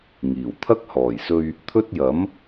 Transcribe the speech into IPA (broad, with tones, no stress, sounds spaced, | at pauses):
ŋ iː˨˩ w t̪ʰ ɐ˥ k̚ h ɔː˨˩ j s ɵ˧ ɥ | t̪ʰ ɵ˥ t̚ j ɐ˨˥ m